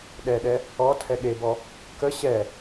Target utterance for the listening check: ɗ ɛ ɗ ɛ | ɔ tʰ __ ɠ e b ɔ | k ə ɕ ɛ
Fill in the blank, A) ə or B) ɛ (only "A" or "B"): B